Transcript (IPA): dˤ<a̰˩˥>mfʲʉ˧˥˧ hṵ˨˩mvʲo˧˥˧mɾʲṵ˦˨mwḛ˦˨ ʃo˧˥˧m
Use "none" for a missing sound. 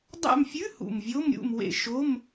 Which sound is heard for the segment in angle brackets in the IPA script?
a̰˦˨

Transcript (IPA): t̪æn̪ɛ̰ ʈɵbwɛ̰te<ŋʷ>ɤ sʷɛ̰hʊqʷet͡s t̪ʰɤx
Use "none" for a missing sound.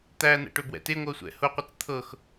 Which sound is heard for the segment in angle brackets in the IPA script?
ŋʷ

